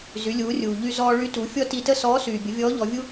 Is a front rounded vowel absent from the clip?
no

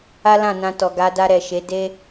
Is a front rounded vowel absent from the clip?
yes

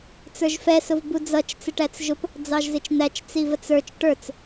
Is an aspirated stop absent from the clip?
yes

